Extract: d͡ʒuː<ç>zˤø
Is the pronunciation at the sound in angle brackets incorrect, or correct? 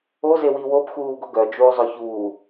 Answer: incorrect